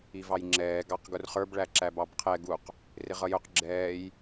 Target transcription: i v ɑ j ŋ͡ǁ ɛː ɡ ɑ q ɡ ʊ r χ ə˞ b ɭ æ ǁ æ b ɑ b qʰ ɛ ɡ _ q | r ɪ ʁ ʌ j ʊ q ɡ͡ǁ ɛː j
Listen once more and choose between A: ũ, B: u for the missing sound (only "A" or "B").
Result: B